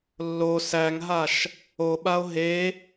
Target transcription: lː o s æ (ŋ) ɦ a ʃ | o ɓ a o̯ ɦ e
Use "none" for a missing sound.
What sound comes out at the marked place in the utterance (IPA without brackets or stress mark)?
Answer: ŋ